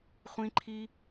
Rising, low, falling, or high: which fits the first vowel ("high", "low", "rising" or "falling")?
high